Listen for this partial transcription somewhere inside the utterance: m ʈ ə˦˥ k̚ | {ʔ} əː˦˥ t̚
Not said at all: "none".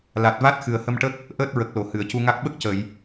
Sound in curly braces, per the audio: ʔ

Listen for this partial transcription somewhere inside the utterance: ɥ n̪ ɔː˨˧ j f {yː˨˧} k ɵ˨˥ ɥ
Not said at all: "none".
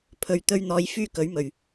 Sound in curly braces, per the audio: yː˥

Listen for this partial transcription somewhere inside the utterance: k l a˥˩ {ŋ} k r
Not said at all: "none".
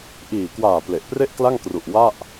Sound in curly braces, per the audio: ŋ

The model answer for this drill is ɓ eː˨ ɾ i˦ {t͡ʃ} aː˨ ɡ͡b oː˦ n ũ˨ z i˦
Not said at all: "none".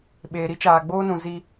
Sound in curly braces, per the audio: t͡ʃ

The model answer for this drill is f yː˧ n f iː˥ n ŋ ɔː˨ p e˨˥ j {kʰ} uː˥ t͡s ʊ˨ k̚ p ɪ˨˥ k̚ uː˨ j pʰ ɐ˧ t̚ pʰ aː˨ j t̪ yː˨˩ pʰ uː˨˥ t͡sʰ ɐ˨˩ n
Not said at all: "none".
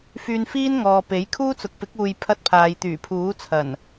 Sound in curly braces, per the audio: kʰ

